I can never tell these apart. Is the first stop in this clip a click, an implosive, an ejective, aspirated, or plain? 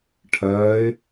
aspirated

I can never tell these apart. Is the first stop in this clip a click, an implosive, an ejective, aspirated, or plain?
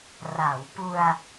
plain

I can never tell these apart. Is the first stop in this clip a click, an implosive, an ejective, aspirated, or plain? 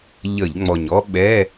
implosive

